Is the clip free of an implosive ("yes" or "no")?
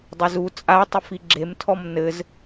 yes